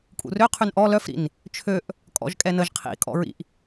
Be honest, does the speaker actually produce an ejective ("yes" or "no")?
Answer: yes